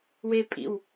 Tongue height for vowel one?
mid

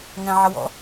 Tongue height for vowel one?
low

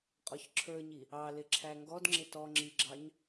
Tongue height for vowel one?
mid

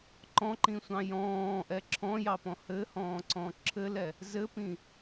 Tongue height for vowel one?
mid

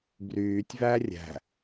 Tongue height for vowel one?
high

